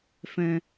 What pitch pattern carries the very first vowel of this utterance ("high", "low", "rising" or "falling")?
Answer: low